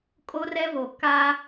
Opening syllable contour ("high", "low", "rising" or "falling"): high